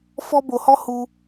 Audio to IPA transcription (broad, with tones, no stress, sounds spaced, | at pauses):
f ɔ˦ b o˧ h ɔ˦ h u˧